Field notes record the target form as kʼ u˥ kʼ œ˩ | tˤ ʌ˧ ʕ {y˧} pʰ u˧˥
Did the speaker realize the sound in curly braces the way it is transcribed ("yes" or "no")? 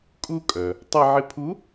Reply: no